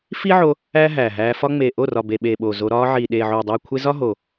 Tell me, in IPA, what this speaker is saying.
f i˦ ʕ o˧ | æː˦ ɦ æː˨ ɦ æː˧ f ɒ˦ ŋ͡m eː˨ ʔ o˦˨ r ɒ˨ b e˨ ɓ e˨ ɓ oː˨ z o˧ ɾ ɒː˧ ʕ iː˨ ɗ eː˨ ʕ oː˨ dˤ iː˨ kʷʰ e˧ z ɒ˦ ɦ o˨

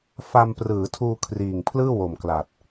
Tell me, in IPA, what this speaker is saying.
f a˧ m p r ɯː˩˦ tʰ uː˧ kʰ r iː˨˩ ŋ pʰ l ɯː˥˩ w o˨˩ m k l a˨˩ t̚

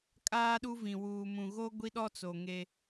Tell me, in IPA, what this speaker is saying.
kʼ aː˦ ɗ u˦ v ĩ˨ w uː˨ m ũ˨ ɣ o˦ ɡʷ i˦ ɗ ɔ˦ t͡s o˨ ŋ e˦

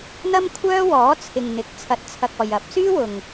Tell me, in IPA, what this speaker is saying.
n̪ ɐ˥ m kʷʰ œː˥ w ɔː˨˥ t͡sʰ ɪ˨ ŋ n̪ ɪ˨˥ k̚ t͡sʰ ɐ˧ t̚ t͡sʰ ɐ˧ k̚ ɔː˨ j ɐ˨˥ p̚ s yː˥ w ʊ˨ ŋ

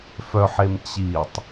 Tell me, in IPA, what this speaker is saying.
f œ ħ e m t͡ɕ i tˤ

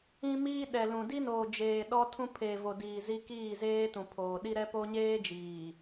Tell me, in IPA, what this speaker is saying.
ĩ˦ m iː˦ ɗ ɛ˨ l ũ˨ d i˦ n oː˨ d͡ʒ eː˨ ɗ ɔ˦ tʰ ũ˦ pʰ eː˨ v o˨ d iː˨ z i˦ k iː˦˨ z eː˦ t ũ˨ pʰ oː˨ ɗ i˦ ɾ ɛ˦ p o˦ ɲ eː˦ d͡ʒ iː˨

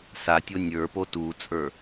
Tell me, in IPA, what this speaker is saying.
s a tʲ o nʲ ə˞ p o t u t͡sʼ ə˞

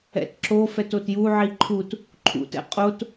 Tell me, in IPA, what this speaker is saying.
ɛ̰ t ǁ o f ɛ t o t j u ʕ i ǃʰ u t | ǃʰ ṵ t ɛ̰ qʼ o t

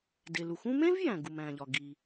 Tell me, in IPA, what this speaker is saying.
d e˩ l u˩ x ũ˥ m ẽ˥ v j æ̃˩ ɡ u˩ m æ̃˩ ʎ ɒ˩ ɡ i˩

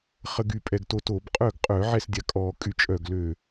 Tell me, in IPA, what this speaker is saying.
χ ə˧ ɡ y˧˩ pʼ ɛ˧˩ ɡ t o˧ t o˧˩˧ b qʼ œ˥˩ ɡ qʼ œ˧˩˧ ʕ ɛ˥˩ s dʲ a˧ kʼ ɔ˧˩˧ kʼ y˧ t͡ʃʼ œ˧˩ ɡ l ø˧˩

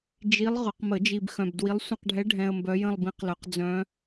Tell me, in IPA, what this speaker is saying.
d͡ʒ i˧˥ lˠ ʁ ʊ˨˩˦ q m ə˨˩˦ d͡ʒ i˨ b x œ̃˨ b d w i˧˥ lˠ sʷ ə̃˥˧ q ɖʱ ɛ˧˥ ɖʱ ɛ̃˨ ə̯ m b œ˧˥ j ə̃˥˧ lˠ b ĩ˧˥ q l œ˨˩˦ q d͡z œ̃˧˥

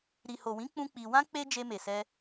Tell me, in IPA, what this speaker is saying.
ɾ i˨ h o˨ w ĩ˨˦ k͡p ũ˦ k͡p i˧ w ã˦ k͡p e˦ d͡ʒ e˧ m e˨ s ɛ˧

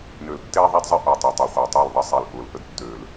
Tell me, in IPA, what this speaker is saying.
n ø˨ l tː eː˦ ðˤ a˦ d zˤ ə˦ ʔ o˨ tˤ o˨ tˤ ø˨ χʷ a˨ tˤ ɑ˦˨ l ðˤ ə˦ sˤ e˨ l ʔ ʊː˨ l ʔ ə˦ d tː øː˨ l

